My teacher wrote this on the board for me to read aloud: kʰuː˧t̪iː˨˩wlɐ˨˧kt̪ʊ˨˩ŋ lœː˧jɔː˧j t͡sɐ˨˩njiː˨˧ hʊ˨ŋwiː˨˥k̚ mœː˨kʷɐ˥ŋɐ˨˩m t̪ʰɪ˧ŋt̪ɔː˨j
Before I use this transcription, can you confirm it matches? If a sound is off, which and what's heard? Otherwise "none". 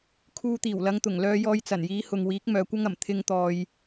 k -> ŋ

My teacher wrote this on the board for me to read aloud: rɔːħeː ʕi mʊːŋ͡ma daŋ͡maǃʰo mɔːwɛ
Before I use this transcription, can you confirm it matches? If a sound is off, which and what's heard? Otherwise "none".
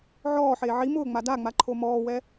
r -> ʕ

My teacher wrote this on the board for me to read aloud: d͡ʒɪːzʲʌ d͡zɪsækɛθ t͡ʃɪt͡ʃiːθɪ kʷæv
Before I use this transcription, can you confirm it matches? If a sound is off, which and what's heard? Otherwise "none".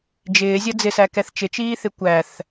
v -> θ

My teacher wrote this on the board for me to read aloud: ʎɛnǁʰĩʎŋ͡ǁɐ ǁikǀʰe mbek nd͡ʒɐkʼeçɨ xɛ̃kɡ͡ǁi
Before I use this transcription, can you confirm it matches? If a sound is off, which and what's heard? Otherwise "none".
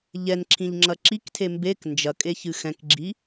ǀʰ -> tʰ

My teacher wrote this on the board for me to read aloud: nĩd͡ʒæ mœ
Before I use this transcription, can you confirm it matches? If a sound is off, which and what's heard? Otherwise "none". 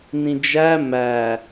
œ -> æ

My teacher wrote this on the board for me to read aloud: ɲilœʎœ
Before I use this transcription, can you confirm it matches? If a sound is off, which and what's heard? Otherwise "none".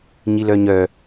ʎ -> ɲ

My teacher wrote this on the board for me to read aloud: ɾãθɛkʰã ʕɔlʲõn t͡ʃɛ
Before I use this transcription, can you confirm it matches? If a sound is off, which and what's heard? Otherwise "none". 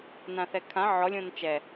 ɾ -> n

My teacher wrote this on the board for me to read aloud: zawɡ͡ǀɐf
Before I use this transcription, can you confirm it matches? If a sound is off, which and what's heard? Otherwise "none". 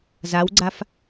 ɐ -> a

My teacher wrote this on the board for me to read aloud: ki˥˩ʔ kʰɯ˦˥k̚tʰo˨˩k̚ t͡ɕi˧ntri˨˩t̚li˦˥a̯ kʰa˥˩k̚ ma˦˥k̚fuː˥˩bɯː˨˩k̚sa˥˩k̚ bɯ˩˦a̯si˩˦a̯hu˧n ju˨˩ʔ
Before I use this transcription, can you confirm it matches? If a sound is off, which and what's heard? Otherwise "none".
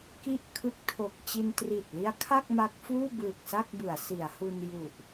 none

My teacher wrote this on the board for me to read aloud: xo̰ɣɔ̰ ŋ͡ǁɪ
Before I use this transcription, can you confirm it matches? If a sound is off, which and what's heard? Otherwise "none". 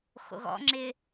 none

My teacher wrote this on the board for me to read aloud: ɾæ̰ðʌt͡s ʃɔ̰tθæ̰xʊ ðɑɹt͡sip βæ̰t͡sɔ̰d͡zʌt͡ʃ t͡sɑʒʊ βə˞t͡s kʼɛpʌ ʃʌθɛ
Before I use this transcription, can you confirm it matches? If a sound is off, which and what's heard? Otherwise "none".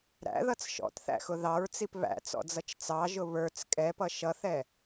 none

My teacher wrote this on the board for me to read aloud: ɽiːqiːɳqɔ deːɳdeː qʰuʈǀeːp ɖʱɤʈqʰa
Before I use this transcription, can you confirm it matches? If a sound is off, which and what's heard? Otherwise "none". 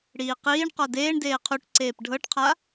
none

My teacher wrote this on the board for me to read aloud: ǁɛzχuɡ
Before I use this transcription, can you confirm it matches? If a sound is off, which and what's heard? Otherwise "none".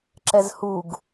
χ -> h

